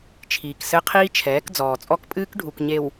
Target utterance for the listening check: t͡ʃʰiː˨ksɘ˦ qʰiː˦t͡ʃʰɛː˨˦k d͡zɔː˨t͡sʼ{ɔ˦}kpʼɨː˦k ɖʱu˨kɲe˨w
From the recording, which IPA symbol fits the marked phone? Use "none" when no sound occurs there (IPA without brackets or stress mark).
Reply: ɔ˦